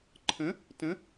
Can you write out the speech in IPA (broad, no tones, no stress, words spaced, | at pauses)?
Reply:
ǃʰə̃ | tə̃